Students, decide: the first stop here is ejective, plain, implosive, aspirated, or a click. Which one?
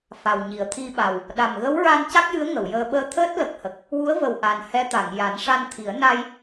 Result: aspirated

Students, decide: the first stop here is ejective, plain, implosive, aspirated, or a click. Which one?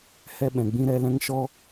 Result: implosive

